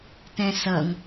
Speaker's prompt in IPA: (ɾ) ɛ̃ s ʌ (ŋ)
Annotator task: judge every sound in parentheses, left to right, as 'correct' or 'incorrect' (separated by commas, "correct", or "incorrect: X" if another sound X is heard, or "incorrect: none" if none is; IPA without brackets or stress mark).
incorrect: t, correct